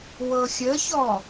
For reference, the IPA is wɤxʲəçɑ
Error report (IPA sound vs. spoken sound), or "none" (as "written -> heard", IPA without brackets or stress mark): ɑ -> ɔ